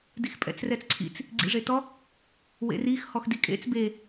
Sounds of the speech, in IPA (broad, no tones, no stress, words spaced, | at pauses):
dixpʼɛ̰t͡srɛt͡sǀʰḭt͡s | ɡ͡ǀḭʐetɔ | wḛrix hɔxdikʼḛt͡s be